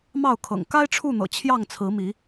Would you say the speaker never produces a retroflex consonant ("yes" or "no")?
no